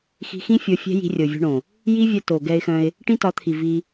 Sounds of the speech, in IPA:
xi̤˧xĩ˦ fʲo˧fʲɛ̤˦ ji̤˧rʲo˨vʲo̤˧ɳõ˨ | ji˦vʲœ˧to˨ ɡɛ˧ɪ̯xœ̃˧ɪ̯ | ʈĩ˦tɒ˨˦t̪ʰi˨ vi˧

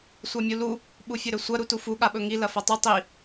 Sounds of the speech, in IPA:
sʷamʲulu | ɓufʲɵɾɵsʷɐ ɾutufu ɠaɓɵŋi lɐfɐtˤɨ tˤi

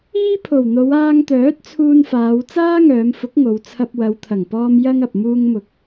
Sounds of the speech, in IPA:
iː˥pʰo˨˩wn̪o˨˧w aː˧ŋt̪œː˨˥t̚ t͡sʰuː˧nfaː˨˧w t͡saː˥ŋœː˨˧mfʊ˨˥k̚ ŋo˨˧wt͡sʰɐ˧p̚ wɐ˨˧wt̪ʰɐ˨˩ŋpɔː˧m jɐ˥ŋɐ˨p̚ muː˧ŋmʊ˨k̚

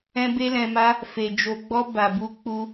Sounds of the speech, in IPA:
ɛ̃˦be˦lɛ̃˧ma˦ | fe˧ d͡ʒo˧ɡ͡bɔ˦ ba˧bu˦k͡pu˦

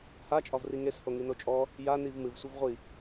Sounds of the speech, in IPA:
hat͡ʃʼɒvri ŋesho ŋinot͡ʃʼɔ | janiv mɨv sʷivʁʷi

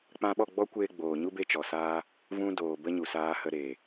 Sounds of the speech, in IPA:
k͡pã˧ɓɔ˦˨ɡ͡bɔ˦kʷeː˧ ɡ͡boː˨ɲu˦ be˧t͡ʃɔ˨saː˧ | vũ˦ doː˨ bə˦ɲu˨saː˧hə˧ ɾeː˨

